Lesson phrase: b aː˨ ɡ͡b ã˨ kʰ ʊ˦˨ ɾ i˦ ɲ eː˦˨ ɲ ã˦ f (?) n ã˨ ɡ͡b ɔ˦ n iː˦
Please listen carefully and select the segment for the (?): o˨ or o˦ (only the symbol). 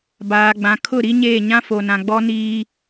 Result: o˨